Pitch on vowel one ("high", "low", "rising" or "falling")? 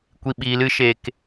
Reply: low